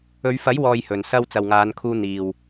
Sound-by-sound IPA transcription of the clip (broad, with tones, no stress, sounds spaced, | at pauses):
ɵ˨˧ ɥ f ɐ˨˥ j w ɔː˨ j h ɵ˨ n s ɐ˧ w t͡s ɐ˨ w ŋ aː˨˧ n kʰ uː˧ n̪ iː˨ w